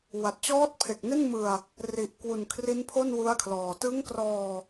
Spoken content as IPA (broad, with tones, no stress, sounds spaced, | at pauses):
w a˨˩ t̚ t͡ɕ ɔː˦˥ t̚ pʰ e˨˩ k̚ n e˥˩ n m ɯ˧ a̯ | r i˨˩ ʔ k w u˨˩ n kʰ r i˦˥ n pʰ o˥˩ n w u˦˥ a̯ kʰ l ɔː˨˩ t ɯ˦˥ ŋ k r ɔː˧